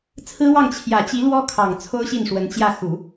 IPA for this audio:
t͡sʰ ɹ̩˥ w ɑ˥˩ ŋ t͡ɕʰ j ä˨˩ t͡ɕ i˧˥ l w ɔ˥ kʰ ɑ˨˩ ŋ t͡sʰ o˥ ʊ̯ ɕ i˥˩ n ʂ w ə˧˥ n t͡ɕ j ä˥˩ x u˨˩˦

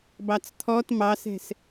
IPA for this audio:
b ɑ t͡s t̪ʰ ɔ t m ɑ s ɛ̤ s

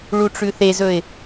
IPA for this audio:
ɭ u ʈ͡ʂ ʉ θ e z ɵ ɪ̯

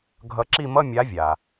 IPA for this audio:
ɡʱ ʌ˨˦ ǁ i˦˨ m ʌ˧˥˧ mʲ a˨˦ vʲ a˩

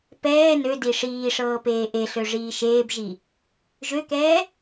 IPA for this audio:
p ɛː n ø d i ʂ iː ʂ ɤː p eː ʔ e ɬ ø ʐ iː ʃ eː b ʒ i | ʒ ø k ɛː

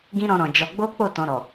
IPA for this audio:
ɡ ĩ˦ ɾ ɔ̃˧ ɾ ɔ̃˨ d͡ʒ ɔ˧ ɡ͡b o˦ k͡p o˦˨ t ɔ̃˧ ɾ ɔ˨

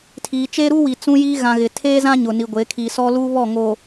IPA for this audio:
tʰ iː˨ t͡ʃ eː˦ ɾ u˦ w i˨ t͡s ũ˦ j iː˦ ɣ ã˨ ɣ ɪ˨ tʰ eː˦ z ã˦ ɲ ʊ˨ n i˨ ɡʷ e˨˦ kʰ iː˨ s ɔ˦ l uː˦ β ɔ˦˨ ŋ o˨

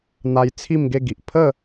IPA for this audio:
n̪ a˧ j t͡sʰ i˥˧ m ɡ e˥˧ ɡ i˨ ʔ pʰ ə˥˧

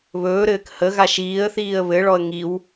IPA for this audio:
β ɵː ɾ ɘː k h ə ɣ a ʃ iː ə̯ θ iː ə̯ β ɘ ɭ ɔ ə̯ ŋ i w

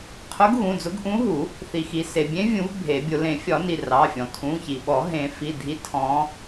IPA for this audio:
qʰ ʊ˧˥ ɡ ɣ ũ˩˧˩ d͡z ʊ˧˥ ɡ ʔ ũ˧˥ ɦ u˨˩˦ | θ i˩ x i˩ s e˩ bʲ ẽ˧˥ vʲ ũ˨˩˦ v bʱ e˨˩˦ bʲ ʊ˨˩˦ l ẽ˨˩˦ fʲ ɒ˨˩˦ n i˩ r ɑ˩˧˩ fʲ ɔ̃˩ tʰ ũ˩˧˩ ç i˩ ɓ ɔ˨˩˦ ɦ ẽ˨˩˦ f i˩˧˩ dʱ i˧˥ tʰ ɔ̃˧˥

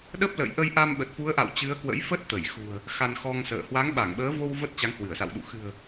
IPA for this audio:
ɗ ə˦˥ p̚ l ə̰ː˧˨ j ʔ ə˧ j ʔ a˧ m ɓ ə˨˩ t̚ f u˨˦ ə̯ ʔ a̰˧˨ w t͡ɕ ɨ˨˦ ə̯ k w ə̰˧˥ j f ə˦˥ t̚ t̪ ə˧˩ j x ṳ˨˩ ə̯ | x a˧ n x ɔ˧ ŋ s ə̰ː˧˨ h w a˨˦ ŋ ɓ a˧˩ ŋ ɓ əː˨˦ v o˧ w v ə˦˥ t̚ t͡ɕ a˨˦ ŋ h w ɨ˧˩ ə̯ s a̰˧˨ w ɗ ṵ˧˨ x ɨ̤˨˩ ə̯

